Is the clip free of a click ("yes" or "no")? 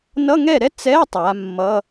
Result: yes